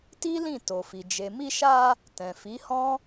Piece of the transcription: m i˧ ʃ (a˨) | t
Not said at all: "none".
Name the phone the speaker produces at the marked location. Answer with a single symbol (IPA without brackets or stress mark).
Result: a˧